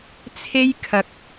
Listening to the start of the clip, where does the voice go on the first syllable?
high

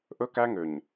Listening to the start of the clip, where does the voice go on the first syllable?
high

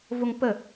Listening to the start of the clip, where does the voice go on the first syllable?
high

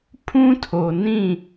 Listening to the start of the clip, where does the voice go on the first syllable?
high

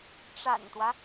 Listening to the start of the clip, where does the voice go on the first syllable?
low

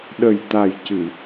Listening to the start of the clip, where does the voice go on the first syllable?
low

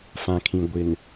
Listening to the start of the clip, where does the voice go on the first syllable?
low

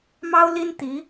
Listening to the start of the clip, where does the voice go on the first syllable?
high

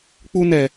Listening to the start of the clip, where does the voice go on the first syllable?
high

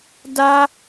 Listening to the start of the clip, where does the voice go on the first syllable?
high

